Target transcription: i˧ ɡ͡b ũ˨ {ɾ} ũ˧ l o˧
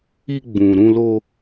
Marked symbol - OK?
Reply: yes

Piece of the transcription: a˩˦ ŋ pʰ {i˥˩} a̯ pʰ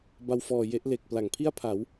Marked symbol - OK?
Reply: yes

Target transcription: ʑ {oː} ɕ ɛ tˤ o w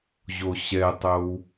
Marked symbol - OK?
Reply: no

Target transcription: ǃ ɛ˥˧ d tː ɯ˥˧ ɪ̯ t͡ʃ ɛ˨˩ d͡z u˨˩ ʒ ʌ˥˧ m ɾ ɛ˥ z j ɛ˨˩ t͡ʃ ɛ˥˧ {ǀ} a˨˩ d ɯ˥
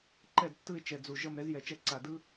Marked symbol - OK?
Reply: yes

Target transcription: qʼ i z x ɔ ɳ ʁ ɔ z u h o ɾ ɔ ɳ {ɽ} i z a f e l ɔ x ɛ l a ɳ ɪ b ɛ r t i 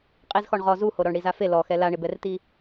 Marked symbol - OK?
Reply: yes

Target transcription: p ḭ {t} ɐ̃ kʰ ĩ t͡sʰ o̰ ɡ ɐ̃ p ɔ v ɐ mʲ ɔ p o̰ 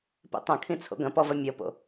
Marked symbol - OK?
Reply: no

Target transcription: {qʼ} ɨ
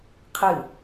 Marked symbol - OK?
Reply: no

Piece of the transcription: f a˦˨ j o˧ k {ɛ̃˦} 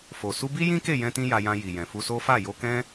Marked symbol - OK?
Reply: yes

